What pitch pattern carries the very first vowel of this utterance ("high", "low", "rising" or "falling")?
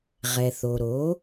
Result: low